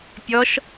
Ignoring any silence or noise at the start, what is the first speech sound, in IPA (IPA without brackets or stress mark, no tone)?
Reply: pʲ